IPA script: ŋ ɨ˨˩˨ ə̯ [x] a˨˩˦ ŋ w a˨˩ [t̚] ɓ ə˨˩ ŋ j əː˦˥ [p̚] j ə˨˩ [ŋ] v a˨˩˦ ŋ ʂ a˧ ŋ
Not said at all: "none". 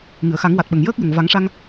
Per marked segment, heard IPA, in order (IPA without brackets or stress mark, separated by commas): x, t̚, k̚, ŋ